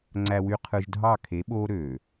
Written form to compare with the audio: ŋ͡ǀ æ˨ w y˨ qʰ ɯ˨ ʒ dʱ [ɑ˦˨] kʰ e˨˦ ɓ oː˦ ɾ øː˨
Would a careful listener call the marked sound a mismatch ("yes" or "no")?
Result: no